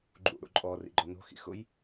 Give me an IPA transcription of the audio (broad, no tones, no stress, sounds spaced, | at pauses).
ɡ͡ǃ ṵ ɽ ṵ ǃʼ ɔ r ḭ ɡ͡ǃ ɔ n o̤ x ḭ x ʊ j